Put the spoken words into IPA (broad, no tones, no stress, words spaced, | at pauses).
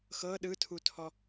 xɤ ɗɯtʰutʰɔ